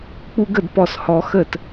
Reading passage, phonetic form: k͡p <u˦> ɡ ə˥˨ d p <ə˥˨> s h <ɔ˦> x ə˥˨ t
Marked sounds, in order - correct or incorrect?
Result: correct, incorrect: ɔ˥˨, correct

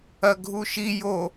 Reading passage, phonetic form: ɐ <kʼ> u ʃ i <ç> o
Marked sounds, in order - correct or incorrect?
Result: incorrect: ɡʱ, incorrect: j

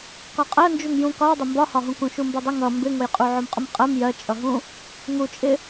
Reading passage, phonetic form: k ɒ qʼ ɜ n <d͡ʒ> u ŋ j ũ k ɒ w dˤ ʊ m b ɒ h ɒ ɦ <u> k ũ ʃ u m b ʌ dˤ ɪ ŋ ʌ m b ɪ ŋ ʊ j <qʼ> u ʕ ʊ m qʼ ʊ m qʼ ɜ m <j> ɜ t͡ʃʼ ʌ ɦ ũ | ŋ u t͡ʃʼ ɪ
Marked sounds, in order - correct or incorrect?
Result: correct, incorrect: ũ, correct, correct

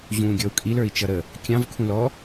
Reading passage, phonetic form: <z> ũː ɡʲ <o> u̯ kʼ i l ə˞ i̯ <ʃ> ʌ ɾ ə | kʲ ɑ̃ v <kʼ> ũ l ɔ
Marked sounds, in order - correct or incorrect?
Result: incorrect: ʑ, incorrect: ɔ, incorrect: t͡ʃ, incorrect: kʰ

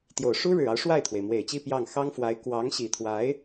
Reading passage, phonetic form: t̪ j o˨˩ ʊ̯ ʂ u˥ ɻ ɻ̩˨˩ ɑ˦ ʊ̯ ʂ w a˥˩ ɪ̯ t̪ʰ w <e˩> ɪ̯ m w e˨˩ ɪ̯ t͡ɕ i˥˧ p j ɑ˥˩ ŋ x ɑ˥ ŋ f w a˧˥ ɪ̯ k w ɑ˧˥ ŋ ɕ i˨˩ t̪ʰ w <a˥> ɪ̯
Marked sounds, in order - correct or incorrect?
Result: correct, incorrect: a˧˥

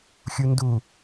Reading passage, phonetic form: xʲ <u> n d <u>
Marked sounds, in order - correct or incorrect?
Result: correct, correct

